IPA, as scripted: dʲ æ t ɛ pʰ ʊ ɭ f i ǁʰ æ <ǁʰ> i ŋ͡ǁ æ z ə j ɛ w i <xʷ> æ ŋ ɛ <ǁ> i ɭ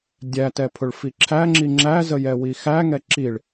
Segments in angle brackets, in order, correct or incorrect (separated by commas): incorrect, incorrect, correct